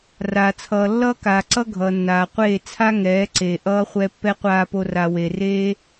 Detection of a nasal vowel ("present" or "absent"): absent